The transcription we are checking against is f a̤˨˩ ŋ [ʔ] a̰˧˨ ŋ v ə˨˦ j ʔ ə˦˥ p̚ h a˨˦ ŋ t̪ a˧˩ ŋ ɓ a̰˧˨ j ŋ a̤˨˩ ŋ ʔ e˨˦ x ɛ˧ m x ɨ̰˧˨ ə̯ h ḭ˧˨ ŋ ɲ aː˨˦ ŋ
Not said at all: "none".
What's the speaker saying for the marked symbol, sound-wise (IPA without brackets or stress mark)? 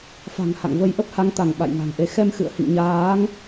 h